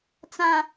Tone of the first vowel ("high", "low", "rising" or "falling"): high